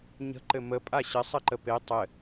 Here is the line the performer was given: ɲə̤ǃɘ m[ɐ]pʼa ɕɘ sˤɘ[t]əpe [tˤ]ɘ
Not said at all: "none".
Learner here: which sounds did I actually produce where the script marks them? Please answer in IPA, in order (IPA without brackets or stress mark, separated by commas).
ə, ǃ, tˤ